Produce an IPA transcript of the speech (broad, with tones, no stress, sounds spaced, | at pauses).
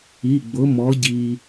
i˩˧˩ ɡ͡b ʊ˨˥ m ɔ˨˥ ɟ i˧